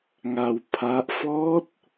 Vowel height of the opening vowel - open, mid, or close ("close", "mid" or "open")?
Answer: open